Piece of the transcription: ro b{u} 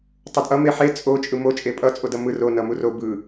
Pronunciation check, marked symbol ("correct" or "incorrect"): incorrect